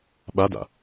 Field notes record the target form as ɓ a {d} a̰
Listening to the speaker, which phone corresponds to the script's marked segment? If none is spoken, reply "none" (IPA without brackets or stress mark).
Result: d